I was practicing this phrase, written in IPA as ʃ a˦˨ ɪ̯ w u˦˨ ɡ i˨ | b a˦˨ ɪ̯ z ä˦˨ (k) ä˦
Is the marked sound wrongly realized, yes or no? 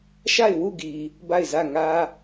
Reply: yes